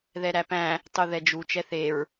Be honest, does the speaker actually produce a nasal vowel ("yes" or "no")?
yes